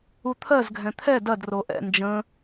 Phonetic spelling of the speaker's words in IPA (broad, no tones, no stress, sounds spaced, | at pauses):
u t̪ʰ ɜ z ɡʱ ɛ̃ t̪ʰ ɛ d ɐ d r o ʔ ɛ̰ n d͡ʒ ə̃